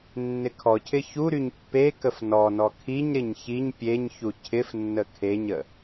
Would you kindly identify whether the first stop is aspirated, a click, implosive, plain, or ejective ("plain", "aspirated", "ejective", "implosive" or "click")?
aspirated